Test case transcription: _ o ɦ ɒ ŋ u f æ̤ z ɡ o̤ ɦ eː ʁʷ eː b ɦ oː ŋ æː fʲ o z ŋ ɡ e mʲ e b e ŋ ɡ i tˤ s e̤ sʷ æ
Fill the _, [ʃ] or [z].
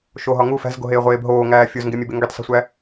ʃ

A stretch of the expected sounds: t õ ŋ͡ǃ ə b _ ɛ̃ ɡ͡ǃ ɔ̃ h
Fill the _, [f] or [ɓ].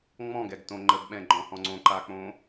ɓ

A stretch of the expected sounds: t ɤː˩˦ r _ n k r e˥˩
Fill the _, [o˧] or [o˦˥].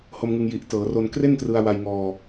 o˧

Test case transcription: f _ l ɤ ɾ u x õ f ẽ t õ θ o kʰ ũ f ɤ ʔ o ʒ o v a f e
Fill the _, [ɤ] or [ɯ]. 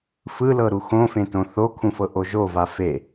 ɯ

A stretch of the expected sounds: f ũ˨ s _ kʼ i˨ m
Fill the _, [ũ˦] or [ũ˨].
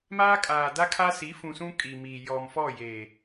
ũ˦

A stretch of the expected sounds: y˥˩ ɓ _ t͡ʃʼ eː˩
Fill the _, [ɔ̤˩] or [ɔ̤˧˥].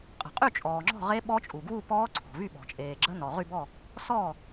ɔ̤˩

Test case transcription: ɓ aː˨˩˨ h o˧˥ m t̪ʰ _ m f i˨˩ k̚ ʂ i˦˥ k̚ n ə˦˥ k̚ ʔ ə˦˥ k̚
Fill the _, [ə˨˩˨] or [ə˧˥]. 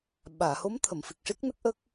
ə˨˩˨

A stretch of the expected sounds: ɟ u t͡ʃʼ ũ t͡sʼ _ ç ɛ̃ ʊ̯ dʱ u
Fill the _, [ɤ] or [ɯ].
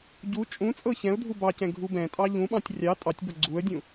ɤ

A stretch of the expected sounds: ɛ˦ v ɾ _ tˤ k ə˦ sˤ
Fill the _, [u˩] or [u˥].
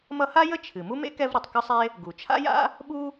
u˩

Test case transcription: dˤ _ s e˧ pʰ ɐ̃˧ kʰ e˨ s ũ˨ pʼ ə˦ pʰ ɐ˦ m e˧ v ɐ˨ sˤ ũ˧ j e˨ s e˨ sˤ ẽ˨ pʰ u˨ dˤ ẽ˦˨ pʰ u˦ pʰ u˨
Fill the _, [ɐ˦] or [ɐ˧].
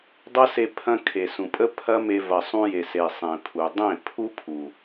ɐ˦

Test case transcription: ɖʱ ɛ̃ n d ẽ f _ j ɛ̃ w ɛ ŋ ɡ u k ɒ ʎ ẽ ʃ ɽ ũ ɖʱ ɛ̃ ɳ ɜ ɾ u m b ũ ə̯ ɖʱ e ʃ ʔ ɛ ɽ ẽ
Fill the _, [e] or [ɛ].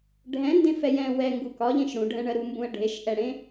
ɛ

